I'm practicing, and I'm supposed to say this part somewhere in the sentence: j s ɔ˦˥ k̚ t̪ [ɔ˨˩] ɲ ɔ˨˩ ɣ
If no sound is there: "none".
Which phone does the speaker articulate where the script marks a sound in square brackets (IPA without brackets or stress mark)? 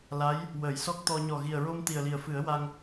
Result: ɔ˧